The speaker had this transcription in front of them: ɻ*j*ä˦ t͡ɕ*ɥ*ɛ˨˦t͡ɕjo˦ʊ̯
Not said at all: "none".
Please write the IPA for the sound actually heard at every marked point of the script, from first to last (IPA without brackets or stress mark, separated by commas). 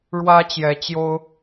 w, j